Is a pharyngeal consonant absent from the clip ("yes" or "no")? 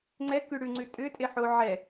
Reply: no